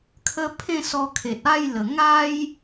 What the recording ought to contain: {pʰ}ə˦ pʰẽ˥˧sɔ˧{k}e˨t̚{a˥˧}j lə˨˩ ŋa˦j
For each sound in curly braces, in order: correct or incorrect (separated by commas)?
incorrect, incorrect, correct